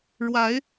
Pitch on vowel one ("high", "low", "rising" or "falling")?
rising